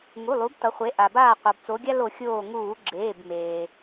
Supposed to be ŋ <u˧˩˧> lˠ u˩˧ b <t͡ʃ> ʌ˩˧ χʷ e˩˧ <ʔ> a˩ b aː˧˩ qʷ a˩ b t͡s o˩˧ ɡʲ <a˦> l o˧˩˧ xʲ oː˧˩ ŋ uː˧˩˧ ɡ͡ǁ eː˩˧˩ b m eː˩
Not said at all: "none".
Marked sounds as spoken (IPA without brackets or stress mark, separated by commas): u˩˧˩, t, ʔ, a˦